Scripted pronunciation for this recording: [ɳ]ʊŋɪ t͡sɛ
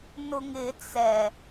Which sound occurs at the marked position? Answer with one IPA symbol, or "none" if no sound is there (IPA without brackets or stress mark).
n